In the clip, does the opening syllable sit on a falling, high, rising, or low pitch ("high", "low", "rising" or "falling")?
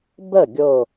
falling